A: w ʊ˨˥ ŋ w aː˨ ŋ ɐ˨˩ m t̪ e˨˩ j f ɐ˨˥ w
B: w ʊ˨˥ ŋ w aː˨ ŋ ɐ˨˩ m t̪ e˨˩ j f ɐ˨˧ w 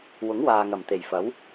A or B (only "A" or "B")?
A